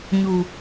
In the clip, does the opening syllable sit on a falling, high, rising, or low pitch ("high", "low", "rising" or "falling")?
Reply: low